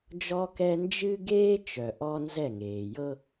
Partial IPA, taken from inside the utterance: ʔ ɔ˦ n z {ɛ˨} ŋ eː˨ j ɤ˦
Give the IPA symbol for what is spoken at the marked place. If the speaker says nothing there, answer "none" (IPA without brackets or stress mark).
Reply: ɛ˦˨